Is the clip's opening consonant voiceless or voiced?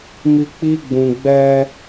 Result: voiced